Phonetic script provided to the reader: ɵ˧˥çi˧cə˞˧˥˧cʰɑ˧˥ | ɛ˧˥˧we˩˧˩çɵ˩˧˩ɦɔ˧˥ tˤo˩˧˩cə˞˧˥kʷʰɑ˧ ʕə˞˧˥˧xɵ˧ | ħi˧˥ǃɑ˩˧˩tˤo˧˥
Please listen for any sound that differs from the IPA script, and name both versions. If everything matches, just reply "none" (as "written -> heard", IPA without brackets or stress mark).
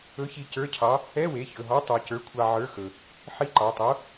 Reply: none